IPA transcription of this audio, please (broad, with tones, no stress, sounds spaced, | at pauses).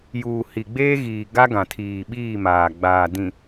j uː˨ h i˨ ɡ͡b eː˦ ɣ iː˨ ɡ a˦ ɡ ã˨ tʰ iː˨ ɓ iː˦˨ m aː˨ ɡ͡b aː˨ d ĩ˨